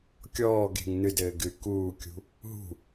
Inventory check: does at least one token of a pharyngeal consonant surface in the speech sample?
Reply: no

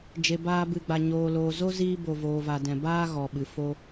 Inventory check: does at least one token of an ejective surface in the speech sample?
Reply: no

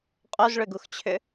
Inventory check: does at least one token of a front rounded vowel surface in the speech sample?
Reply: yes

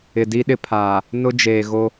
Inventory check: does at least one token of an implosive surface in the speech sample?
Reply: yes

